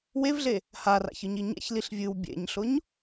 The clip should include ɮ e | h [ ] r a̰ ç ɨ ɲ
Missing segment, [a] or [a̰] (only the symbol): a